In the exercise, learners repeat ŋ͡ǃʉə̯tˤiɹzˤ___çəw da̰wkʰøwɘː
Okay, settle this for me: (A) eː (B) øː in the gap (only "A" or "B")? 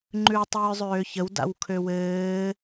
B